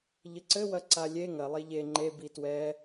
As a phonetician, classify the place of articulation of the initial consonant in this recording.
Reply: palatal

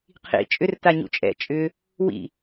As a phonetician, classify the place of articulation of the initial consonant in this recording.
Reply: uvular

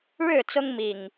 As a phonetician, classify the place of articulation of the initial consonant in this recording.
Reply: retroflex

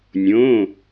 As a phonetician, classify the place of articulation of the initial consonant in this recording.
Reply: alveolar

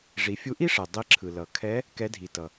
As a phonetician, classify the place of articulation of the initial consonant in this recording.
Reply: retroflex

